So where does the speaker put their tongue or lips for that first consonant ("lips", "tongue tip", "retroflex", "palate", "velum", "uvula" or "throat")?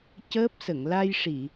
palate